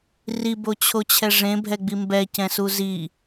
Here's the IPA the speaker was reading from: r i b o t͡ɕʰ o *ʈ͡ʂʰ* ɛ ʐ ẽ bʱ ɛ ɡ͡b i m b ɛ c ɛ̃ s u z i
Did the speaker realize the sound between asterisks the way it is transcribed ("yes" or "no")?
no